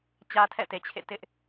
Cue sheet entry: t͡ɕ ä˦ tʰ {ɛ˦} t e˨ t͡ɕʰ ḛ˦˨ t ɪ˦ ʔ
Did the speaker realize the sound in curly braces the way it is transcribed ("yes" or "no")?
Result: no